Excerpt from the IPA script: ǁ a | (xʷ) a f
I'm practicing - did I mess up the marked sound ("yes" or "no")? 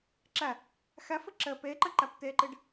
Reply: yes